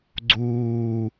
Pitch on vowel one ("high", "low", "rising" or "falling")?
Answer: low